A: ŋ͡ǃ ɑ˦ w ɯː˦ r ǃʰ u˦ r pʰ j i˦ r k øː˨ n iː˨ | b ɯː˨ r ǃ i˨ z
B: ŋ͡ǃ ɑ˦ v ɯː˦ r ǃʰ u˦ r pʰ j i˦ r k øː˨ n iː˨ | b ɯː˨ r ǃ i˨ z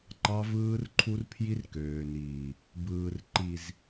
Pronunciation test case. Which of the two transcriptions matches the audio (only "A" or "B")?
B